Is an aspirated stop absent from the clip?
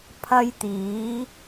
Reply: no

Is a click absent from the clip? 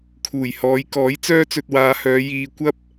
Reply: yes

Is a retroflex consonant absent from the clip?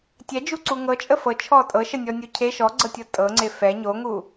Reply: yes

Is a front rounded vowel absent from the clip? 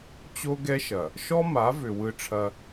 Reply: no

